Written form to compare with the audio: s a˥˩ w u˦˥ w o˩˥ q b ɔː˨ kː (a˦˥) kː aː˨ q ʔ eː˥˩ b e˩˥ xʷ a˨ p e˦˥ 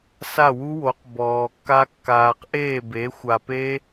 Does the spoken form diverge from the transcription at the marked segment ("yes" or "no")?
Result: no